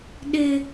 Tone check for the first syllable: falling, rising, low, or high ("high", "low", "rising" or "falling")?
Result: high